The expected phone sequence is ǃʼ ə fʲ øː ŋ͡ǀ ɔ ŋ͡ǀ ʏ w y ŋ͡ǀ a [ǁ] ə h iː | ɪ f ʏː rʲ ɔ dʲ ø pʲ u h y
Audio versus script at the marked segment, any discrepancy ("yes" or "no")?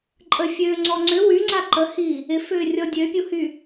yes